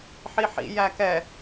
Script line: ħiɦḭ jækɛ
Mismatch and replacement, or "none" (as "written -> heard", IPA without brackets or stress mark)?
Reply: ɦ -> ħ